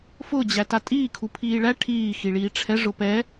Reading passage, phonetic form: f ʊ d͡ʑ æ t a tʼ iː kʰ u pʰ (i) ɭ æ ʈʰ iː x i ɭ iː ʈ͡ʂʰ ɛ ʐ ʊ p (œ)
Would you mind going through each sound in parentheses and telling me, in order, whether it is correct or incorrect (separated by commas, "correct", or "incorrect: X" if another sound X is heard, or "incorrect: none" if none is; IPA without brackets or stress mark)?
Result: incorrect: iː, incorrect: ɛ